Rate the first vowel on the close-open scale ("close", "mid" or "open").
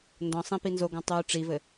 mid